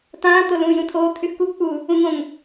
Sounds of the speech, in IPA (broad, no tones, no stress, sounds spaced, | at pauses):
t ãː t̪ o l ũː j ũ t̪ʰ oː t̪ʰ y x k u ɡ k͡p uː | ũ ŋ õ ŋ